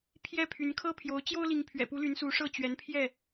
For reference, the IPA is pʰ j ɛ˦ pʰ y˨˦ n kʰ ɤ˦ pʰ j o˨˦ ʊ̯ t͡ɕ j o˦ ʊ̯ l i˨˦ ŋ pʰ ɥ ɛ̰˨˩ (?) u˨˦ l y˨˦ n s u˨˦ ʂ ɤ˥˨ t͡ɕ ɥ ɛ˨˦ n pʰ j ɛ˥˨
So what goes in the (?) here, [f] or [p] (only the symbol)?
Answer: p